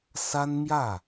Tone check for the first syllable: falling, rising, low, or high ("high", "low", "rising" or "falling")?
high